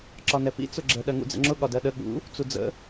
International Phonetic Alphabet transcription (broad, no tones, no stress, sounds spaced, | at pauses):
ǁ ɒ n ɛ p ḭ t͡s ʊ ɡ͡ǁ ə ɗ ɜ ŋ ṵ d͡z ə̰ ŋ͡ǁ ʊ ɠ ɒ d ɜ ɗ ə ɠ ṵ | t͡s u d͡z ə̰